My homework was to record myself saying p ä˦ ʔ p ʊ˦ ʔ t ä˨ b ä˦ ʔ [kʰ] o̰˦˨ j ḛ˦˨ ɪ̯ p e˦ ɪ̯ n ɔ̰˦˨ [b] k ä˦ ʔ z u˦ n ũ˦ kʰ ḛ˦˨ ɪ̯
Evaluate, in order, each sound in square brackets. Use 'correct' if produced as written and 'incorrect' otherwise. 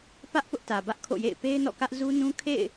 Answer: correct, incorrect: none

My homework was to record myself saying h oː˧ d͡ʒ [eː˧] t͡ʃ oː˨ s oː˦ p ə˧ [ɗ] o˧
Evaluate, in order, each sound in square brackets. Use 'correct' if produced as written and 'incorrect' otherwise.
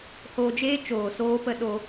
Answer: incorrect: eː˦, correct

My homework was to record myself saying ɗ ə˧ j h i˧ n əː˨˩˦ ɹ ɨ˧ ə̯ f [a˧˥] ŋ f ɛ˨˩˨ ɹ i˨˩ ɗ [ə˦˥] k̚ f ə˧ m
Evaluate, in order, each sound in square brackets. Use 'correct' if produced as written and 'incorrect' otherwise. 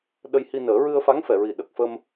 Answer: correct, incorrect: ə˨˩

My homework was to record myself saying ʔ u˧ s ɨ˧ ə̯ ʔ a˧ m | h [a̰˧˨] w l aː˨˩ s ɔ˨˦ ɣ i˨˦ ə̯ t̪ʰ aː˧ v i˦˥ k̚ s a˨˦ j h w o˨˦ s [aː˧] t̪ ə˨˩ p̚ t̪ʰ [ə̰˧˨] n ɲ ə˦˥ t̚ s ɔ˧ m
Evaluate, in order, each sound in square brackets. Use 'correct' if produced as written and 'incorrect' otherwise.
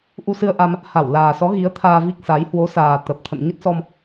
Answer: incorrect: a˧˩, incorrect: aː˨˩, correct

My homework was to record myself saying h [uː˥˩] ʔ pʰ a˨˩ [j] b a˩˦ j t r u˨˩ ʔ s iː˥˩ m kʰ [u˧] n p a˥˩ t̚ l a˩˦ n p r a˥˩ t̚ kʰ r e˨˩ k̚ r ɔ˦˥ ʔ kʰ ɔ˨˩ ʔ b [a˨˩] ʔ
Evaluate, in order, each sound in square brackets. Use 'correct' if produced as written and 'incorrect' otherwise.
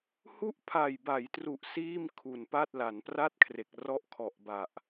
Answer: incorrect: u˥˩, correct, incorrect: u˨˩, correct

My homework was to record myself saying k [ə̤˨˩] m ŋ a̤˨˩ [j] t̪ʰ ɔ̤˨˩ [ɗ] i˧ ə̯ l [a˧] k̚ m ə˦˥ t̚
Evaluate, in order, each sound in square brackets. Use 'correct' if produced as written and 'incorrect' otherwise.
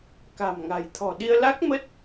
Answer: incorrect: a̤˨˩, correct, correct, incorrect: a˦˥

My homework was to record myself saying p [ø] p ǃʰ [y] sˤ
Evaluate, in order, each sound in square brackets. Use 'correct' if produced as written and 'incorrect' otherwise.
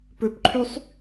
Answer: correct, correct

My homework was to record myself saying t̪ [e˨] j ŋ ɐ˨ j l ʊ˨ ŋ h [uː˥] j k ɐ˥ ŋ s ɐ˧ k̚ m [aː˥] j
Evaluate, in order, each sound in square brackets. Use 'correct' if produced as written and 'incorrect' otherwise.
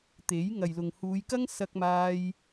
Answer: incorrect: e˨˥, incorrect: uː˨˧, incorrect: aː˧

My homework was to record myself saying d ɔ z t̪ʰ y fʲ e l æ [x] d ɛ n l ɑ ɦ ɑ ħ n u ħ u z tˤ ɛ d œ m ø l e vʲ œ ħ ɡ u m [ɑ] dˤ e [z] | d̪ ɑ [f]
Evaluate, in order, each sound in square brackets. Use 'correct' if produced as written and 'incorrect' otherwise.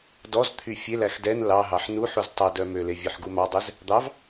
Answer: correct, correct, correct, incorrect: v

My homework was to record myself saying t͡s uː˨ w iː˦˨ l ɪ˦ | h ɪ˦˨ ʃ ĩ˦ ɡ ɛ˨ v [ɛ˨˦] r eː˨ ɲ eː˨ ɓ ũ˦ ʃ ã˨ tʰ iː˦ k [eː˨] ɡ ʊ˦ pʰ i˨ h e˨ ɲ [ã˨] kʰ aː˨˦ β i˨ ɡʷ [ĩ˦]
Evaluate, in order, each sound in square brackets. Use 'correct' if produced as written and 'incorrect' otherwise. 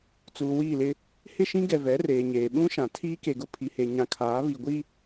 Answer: correct, incorrect: e˨, correct, incorrect: i˦

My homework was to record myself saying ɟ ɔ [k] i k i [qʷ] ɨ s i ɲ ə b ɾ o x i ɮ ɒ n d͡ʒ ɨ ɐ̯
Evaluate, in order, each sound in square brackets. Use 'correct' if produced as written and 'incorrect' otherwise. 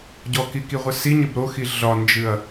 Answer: correct, incorrect: ʁʷ

